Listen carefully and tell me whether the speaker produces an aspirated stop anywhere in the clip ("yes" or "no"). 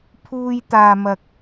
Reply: yes